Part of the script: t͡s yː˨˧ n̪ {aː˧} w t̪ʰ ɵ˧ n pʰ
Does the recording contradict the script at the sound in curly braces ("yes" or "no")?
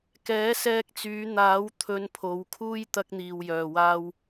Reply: yes